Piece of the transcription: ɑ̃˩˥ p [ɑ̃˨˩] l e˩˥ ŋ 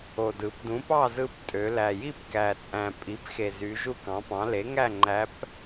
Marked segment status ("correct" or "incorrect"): incorrect